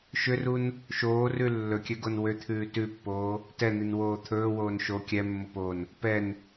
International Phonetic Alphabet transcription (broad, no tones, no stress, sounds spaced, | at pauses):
ʃ ʏ r u n | ʃ oː r ʉ lː ɵ kʲ ø ɡ o n w ø t̪ʰ ʉː t ʉ pː oː | t ɛ n̪ i n w oː t̪ʰ ɵː w oː n ʃ o kʲ ɛ mː o p oː n | p ɛ n